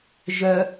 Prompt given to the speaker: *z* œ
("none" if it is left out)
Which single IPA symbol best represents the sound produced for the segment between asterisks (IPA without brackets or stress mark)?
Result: ʒ